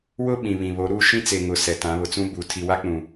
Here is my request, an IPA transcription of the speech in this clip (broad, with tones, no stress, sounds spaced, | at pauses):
w ʊ˦ ɓ ĩ˨ β ĩ˨ β o˨˦ ɾ uː˦ ʃ ĩ˦ t͡s e˨ ŋ ʊ˨ s ɛ˨ t ã˨˦ β ʊ˨ t͡s ũ˦ b u˨ tʰ i˨ w a˦ k͡p ũ˨